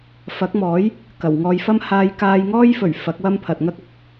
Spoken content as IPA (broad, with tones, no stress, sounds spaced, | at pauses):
f ɐ˨˥ k̚ m ɔː˨˥ j | k ɐ˨˩ w ŋ ɔː˧ j f ɐ˥ m h aː˧ j k aː˧ j ŋ ɔː˥ j f ɵ˨˩ ɥ f ɐ˨˥ k̚ w ɐ˥ m pʰ ɐ˨ t̚ ŋ ɐ˥ k̚ ɐ˨ k̚